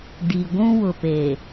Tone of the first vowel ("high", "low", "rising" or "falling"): low